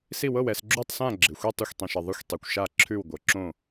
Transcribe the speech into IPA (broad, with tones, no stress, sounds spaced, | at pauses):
s i˥˧ w ɤ˥˧ w ɛ˥˧ s ɡ͡ǁ u˥˧ tˤ s ã˥˧ ɡ͡ǁ ɪ˧ xʷ i˥˧ tˤ ʌ˥˧ xʷ tˤ ĩ˧ ʃ ɛ˧ ðˤ ʌ˥˧ xʷ tˤ i˧ kʷ ʃ a˥˧ ǁʰ ʉ˥˧ w ɡʷ ɤ˧ ǁ õ˥˧